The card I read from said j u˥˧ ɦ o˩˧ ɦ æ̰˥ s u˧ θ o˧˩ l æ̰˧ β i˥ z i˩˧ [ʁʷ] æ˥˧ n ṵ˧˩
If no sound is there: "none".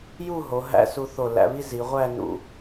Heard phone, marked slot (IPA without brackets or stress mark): ʁʷ